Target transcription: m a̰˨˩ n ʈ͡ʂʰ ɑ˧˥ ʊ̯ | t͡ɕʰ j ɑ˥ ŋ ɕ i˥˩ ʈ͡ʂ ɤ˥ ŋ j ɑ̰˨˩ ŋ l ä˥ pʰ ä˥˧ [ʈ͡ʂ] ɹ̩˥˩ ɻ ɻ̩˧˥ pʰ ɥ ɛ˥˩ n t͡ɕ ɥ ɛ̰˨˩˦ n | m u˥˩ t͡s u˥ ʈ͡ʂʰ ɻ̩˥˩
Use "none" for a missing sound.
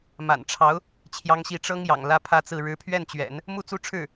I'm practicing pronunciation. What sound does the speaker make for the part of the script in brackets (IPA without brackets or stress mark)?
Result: t͡s